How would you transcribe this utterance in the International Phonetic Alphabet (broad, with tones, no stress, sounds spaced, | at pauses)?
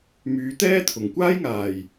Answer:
m yː˨˧ t̪ ɛː˥ t̪ʰ ʊ˨˩ ŋ kʷ aː˥ j ŋ aː˨˩ j